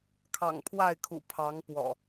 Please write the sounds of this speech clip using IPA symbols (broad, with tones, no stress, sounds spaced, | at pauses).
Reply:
kʰ ɑ̰˨˩ ŋ pʰ w a˥˨ ɪ̯ kʰ ṵ˨˩ pʰ ɑ˨˦ ŋ p w ɔ̰˨˩